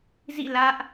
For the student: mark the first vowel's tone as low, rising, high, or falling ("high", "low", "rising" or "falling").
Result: falling